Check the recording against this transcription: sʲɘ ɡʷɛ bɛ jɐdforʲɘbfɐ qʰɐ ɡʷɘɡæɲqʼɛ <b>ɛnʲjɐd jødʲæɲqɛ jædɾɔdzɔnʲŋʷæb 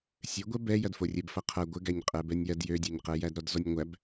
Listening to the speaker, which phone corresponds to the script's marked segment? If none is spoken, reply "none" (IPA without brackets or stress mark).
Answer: b